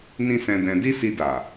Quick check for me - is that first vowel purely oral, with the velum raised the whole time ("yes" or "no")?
no